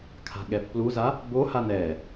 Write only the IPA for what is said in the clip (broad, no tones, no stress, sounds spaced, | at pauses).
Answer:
kʰ a̤ ɠ ɛ f p l u z a | b o h a n ɛ